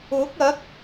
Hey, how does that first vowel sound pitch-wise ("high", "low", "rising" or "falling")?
rising